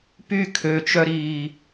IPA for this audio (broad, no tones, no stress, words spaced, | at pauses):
py kʰøt͡ʃœɾiː